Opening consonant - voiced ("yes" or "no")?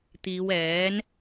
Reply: no